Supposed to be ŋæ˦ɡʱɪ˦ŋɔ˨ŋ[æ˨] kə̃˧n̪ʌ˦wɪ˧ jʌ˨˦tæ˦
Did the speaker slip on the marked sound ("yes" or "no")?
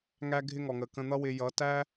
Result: yes